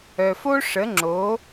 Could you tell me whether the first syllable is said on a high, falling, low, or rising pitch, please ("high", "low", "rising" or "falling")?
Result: low